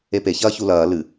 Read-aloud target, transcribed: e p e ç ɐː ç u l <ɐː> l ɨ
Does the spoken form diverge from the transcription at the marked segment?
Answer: no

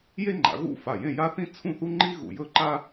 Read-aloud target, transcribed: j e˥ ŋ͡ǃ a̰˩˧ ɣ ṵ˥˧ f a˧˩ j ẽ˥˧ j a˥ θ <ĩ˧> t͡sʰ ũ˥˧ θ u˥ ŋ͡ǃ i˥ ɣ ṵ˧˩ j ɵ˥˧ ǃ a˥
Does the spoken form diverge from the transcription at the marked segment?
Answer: yes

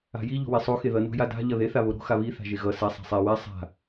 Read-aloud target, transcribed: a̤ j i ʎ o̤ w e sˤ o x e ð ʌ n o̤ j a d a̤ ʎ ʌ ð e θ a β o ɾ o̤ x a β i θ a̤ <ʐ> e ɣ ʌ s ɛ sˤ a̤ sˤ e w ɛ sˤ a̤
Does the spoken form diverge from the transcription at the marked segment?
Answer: yes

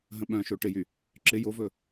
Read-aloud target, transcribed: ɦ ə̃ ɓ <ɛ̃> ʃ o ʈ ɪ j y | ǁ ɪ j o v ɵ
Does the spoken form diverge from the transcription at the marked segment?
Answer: yes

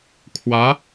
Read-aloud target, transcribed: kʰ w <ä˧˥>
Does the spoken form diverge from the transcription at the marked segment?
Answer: no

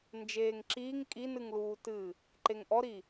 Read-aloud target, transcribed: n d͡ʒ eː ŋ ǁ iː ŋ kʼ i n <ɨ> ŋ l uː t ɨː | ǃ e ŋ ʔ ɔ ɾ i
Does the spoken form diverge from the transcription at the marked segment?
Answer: no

